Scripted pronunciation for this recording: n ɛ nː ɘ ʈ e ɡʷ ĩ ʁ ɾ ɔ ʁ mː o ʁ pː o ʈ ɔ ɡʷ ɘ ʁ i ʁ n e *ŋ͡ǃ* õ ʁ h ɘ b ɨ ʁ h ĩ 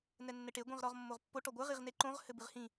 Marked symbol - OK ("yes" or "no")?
no